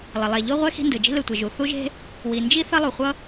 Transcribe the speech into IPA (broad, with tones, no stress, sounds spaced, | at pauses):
lˠ ʌ˩ lˠ ɛ˩ ʎ o˥ ʁʷ ɛ˥ x i̤˥ n d ɯ˩ d͡ʒ i̤˥ l ɯ˩ tʷ e˩ ʒ u˩ θ u˥ ʒ e̤˥ | w i˩ n d͡ʒ i˥ θ ʌ˥ lˠ u˩ χʷ ʌ˥